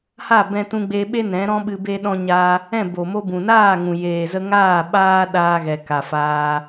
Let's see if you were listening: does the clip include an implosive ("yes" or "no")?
yes